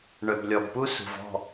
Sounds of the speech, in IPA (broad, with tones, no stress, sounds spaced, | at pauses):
ɳ œ˨ b lʲ ɔ˨ b p u˦ s ṳ˨ v ɔ̤˦˨